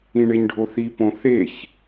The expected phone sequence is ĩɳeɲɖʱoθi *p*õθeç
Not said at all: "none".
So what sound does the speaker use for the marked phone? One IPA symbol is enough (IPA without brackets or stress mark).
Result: p